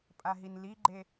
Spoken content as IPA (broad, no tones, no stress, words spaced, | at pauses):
pʼaɦinliɡ͡ǃe